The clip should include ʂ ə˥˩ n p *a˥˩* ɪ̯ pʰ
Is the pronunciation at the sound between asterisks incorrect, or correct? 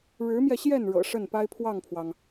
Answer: incorrect